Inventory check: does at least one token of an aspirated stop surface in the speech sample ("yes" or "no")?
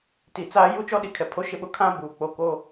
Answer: yes